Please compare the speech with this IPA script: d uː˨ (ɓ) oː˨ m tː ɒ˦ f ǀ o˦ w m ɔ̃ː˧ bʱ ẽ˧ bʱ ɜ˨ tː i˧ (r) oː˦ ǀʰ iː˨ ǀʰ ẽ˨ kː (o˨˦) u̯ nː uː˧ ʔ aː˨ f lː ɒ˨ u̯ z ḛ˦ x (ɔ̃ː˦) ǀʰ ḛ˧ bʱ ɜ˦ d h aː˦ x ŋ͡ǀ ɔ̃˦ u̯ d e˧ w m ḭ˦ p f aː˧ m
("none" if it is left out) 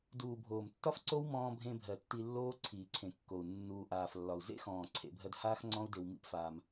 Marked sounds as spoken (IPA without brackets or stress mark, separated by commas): bʱ, lː, o˨, ɔ̃ː˨